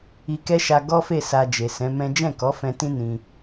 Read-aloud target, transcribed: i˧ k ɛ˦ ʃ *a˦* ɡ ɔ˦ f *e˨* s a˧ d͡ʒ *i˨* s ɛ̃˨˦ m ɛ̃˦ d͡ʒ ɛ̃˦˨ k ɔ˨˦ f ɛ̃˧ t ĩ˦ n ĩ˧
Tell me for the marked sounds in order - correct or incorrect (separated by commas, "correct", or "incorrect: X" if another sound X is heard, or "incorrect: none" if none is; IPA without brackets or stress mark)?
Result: incorrect: a˧, incorrect: e˦˨, incorrect: e˨